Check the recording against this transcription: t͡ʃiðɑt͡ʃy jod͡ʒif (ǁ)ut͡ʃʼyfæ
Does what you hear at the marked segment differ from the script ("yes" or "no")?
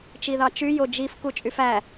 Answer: yes